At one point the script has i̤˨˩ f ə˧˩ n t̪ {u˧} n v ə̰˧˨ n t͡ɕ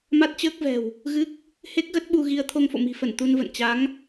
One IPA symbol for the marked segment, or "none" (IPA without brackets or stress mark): u˧